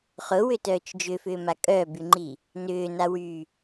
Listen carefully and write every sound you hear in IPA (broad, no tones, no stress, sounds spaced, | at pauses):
χ ʊ w ʏ t œː t͡ʃ d͡ʒ ʏ f ʏː m a kʼ œː b y ŋ͡ǃ i | n ʏː n a w yː